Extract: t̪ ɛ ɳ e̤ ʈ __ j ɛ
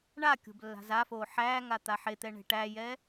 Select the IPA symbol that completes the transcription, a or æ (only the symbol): æ